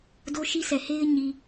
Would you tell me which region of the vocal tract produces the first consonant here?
tongue tip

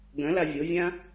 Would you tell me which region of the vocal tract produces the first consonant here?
velum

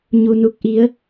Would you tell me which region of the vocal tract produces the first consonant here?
palate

